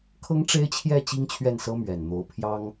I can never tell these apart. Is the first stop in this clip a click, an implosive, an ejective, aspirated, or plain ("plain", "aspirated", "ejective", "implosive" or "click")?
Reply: aspirated